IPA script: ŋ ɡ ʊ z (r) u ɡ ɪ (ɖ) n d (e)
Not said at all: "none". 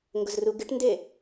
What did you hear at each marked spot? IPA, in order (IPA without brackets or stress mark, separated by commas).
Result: r, ʈ, e